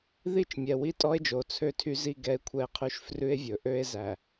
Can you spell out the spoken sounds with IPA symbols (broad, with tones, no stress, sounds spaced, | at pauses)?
ð i˦ t͡ʃ mʲ ɛ˨ w i˦ tʼ ɔ˦ e̯ d͡ʒ o˨ t͡sʰ ø˦ tʰ y˦ z i˦ ɡ ɛ˦ e̯ kʷʰ ɛ˦ e̯ qʰ ʉ˦ ʃ f r ʉ˦ e̯ vʲ ɵ˨ ʔ ø˦ e̯ z æ˨